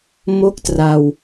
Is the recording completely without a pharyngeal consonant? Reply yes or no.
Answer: yes